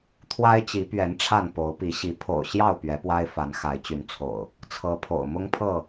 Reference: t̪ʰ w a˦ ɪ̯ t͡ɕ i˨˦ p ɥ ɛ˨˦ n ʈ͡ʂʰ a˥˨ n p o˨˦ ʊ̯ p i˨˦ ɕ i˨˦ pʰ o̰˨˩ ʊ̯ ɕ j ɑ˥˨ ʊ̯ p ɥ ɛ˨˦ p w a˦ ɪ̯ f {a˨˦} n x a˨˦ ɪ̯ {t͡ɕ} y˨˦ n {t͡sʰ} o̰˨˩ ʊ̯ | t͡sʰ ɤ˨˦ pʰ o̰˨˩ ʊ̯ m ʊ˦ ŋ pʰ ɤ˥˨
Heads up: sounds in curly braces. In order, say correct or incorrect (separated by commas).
correct, correct, correct